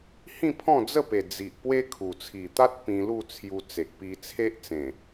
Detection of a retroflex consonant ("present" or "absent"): absent